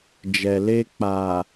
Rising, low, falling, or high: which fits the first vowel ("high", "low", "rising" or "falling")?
low